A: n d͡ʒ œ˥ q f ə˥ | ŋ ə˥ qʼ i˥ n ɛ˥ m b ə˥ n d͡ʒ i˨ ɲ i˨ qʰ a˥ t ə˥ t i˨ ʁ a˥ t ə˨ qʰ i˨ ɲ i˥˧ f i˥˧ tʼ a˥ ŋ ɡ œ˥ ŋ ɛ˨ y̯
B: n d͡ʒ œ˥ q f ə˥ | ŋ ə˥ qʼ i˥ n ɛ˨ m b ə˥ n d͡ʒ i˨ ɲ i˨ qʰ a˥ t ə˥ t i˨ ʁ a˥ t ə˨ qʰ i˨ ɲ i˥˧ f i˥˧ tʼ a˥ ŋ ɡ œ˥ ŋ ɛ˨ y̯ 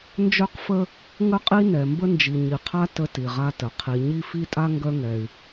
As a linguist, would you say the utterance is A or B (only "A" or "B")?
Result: B